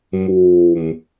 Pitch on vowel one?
low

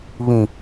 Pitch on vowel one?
low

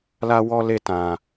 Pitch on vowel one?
high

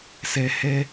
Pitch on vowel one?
low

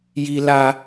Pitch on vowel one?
high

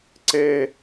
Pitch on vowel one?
high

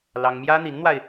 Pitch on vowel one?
high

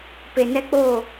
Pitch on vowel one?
low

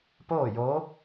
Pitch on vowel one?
falling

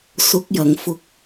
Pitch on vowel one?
rising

